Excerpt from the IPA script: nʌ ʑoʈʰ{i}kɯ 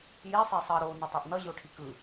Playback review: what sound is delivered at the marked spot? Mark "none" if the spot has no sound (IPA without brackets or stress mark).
i